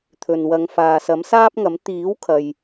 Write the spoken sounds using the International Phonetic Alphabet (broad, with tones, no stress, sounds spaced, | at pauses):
t̪ʰ ɵ˨ n w ɐ˨˧ ŋ f aː˨ s ɐ˨˥ m s aː˥ p̚ ŋ ɐ˨˥ m t̪ iː˨˥ w kʰ ɐ˨ j